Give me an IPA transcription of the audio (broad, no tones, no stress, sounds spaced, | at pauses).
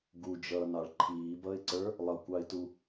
ɡ u d͡ʒ ʌː n ɑ ɭ ǃʰ iː b ʌ ɪ̯ ǀ ə˞ | lˠ ʌ kʷ ɑ ɪ̯ t u